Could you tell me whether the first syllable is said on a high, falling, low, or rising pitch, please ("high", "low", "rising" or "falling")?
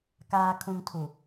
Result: low